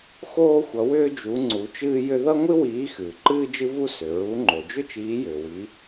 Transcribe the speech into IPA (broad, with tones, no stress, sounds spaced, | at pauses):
x oː˥ xʷ ʌ˨˥ w ʏː˥ d͡ʒ u˨˥ ŋ͡ǀ u˨˥ t͡ʃ ɨː˥ j ʏ˥ ð ʌ˥ ŋʷ ɨ˥ w iː˨˥ x ɨː˩ ǃ ɨː˥ d͡ʒ ɨ˥ v u˥ s ʏ˩ ɹ u˨˥ ŋ͡ǃ o˩ d͡ʒ ʏ˥ t͡ʃ iː˨˥ j ʏː˩ w i˨˥